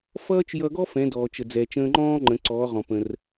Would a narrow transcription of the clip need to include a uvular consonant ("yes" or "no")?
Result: yes